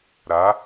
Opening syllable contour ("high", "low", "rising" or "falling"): rising